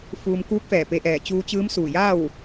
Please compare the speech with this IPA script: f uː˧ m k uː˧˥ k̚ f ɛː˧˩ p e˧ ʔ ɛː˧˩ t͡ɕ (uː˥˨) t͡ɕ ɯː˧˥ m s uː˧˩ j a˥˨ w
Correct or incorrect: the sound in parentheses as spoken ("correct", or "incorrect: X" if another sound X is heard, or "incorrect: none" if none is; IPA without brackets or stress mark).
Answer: incorrect: uː˧